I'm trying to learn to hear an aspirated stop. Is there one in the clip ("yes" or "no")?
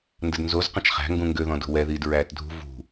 no